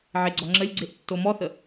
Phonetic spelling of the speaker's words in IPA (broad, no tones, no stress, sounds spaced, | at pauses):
ʕ e ɡ͡ǀ ɔ ŋ͡ǁ ə lʲ ɡ͡ǀ e ʔ tː o m ɔ θ ə